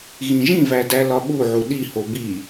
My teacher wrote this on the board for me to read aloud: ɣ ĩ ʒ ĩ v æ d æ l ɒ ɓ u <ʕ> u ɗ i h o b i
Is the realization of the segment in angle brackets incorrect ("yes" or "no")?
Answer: no